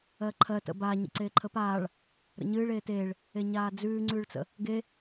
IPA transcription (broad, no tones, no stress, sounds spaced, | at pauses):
ɜ ǃʰ ɜ t ə̰ b a ɲ ə̰ ǀ eː ǃʰ ə p aː ɭ | ɾ ə̰ ɲ ɨː ɭ eː t eː ɭ | e ɲ aː d͡z ʉː ŋ͡ǀ ʉː ɭ t͡s ə̰ | ɡ e